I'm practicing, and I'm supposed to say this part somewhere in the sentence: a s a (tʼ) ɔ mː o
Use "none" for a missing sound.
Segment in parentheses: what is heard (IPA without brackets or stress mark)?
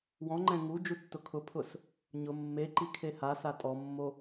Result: tʼ